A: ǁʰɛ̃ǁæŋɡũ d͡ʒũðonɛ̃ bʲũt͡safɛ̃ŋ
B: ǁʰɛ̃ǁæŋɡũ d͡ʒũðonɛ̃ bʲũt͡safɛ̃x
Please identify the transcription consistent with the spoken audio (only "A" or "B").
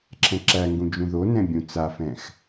B